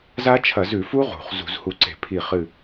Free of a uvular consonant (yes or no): no